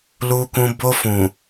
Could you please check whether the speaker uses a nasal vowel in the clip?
yes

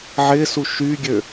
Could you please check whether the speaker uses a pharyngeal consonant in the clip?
yes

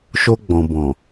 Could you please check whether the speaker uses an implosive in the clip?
no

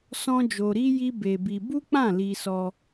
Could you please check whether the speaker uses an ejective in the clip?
no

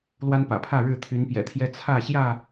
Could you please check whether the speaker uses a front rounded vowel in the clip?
yes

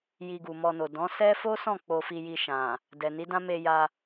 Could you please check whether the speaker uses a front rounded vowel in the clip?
no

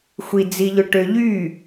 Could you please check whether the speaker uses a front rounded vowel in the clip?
yes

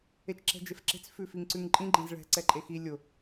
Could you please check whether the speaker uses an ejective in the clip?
yes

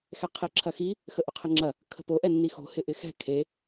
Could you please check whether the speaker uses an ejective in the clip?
no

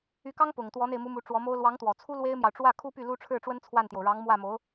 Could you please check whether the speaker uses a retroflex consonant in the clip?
yes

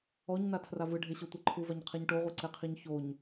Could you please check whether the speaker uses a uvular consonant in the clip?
yes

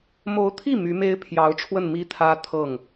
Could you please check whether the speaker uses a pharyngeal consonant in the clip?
no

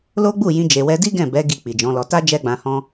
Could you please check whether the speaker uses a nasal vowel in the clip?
yes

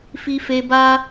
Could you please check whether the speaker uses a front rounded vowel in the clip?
no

